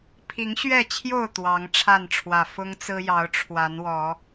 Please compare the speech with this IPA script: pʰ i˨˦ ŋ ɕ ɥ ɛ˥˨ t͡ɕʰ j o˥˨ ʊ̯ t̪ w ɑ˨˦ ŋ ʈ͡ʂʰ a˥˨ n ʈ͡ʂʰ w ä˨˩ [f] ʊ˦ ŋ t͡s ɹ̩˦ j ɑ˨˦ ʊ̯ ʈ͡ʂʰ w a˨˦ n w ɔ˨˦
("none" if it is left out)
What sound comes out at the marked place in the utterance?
f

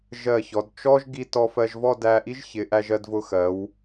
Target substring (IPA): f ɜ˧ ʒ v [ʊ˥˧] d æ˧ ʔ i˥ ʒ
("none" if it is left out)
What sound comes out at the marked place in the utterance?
ɔ˥˧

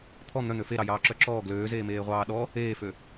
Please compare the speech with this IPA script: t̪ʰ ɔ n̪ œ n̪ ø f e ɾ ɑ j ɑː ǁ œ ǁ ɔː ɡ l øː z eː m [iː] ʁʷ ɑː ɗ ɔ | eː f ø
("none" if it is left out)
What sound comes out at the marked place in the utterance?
eː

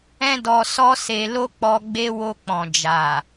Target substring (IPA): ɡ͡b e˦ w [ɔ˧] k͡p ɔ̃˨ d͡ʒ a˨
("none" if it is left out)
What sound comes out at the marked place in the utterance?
o˧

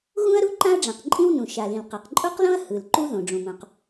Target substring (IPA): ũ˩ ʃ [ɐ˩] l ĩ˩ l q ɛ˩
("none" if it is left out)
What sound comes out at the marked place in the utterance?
a˩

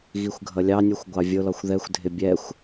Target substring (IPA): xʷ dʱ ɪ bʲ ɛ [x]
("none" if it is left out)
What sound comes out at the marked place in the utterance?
xʷ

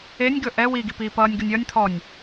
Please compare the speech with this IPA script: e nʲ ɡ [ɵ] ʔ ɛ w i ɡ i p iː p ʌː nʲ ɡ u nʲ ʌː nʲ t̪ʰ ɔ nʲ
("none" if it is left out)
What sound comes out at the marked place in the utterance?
ɵ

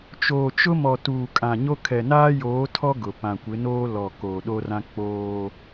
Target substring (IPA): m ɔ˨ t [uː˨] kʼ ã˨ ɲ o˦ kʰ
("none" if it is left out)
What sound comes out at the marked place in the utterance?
uː˨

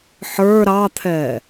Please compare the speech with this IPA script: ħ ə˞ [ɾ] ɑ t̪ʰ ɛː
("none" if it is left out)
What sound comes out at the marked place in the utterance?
ɾ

